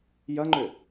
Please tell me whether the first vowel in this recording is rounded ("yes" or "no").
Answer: no